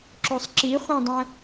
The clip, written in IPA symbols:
ǁ o sˤ ǁ i χʷ ã dˤ ə̃

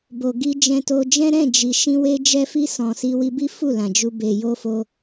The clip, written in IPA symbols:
b o˨ ɡ i˧ d͡ʒ ɛ̃˧ t o˧ d͡ʒ ɛ̃˦ ɾ ɛ̃˦˨ d͡ʒ i˨ ʃ ĩ˧ w e˧ d͡ʒ ɛ˧ f i˧ s ɔ̃˨ s i˧ w i˧ b i˦ f u˦˨ l ã˨ d͡ʒ u˧ b e˨ j o˧ f o˧

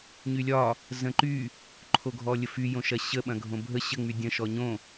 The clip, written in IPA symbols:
ɲ y lʲ ɒ | z ə̃ ǃ y | ǃʰ o ɡʱ ɔ lʲ ə f y j õ ʃ ɐ ɕ ə ɓ ɐ̃ ɡʱ õ bʱ ə ɕ ə ŋ͡m y dʲ ə̃ ʃ ɔ ɲ õ

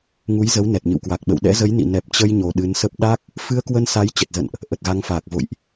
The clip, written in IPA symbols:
ŋ u˨˦ j z ə˨˦ w n ɛ˨˩ t̚ ɲ ɨ̰˧˨ w k w a˨˩ k̚ ɓ ə̰˧˨ w ɗ ɛ̰˧˥ z ə˨˦ j n ḭ˧˨ n ɛ˨˩ p̚ t͡ɕ ə˧ j ɲ o˨˩ ɗ ɨ˨˦ n s ə˦˥ p̚ ɗ a˦˥ k̚ | f ɨ˧ ə̯ k w ə˧ n s a˨˦ j t͡ɕ ə˨˩ t̚ z ə̰˧˨ n ʔ | ʔ ə˨˩ t̚ ɣ a˨˦ ŋ f aː˨˩ k̚ v o̰˧˨ j ʔ

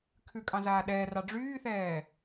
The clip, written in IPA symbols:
kʰ ʉ kʼ ɑ̃ z aː ɗ ɛː r ɑ ɖ͡ʐ yː θ ɛː

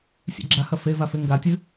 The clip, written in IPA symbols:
sʲ ḛ ɡ͡ǁ a h ɐ f e v a f e ŋ ɡ a tʲ ɨ

